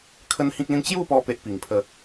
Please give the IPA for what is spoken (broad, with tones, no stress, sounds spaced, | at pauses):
kʰ ə˦ n h ĩ˦ k̚ l ĩ˦ n t͡ɕ j u˥˧ p ɔ˧ p e˦ ʔ p i˨˩ ŋ pʰ ə˦